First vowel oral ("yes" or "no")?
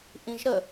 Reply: no